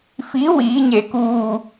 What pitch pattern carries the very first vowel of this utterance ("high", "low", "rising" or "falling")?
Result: rising